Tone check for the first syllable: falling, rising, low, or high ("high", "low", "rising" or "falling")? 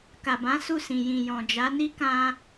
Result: low